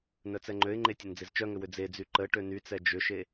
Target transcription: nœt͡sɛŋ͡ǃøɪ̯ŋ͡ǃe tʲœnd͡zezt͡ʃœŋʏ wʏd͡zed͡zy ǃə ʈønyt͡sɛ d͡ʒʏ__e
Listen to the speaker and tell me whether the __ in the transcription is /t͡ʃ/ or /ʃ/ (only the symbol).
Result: ʃ